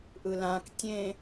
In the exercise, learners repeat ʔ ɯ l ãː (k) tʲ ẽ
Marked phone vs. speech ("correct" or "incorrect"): correct